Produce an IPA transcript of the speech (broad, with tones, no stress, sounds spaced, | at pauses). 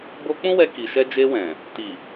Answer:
b o˧ k͡p ũ˦ w ɛ˧ k i˨ ʃ ɛ˧ d͡ʒ e˧ w ɛ̃˨ | t i˨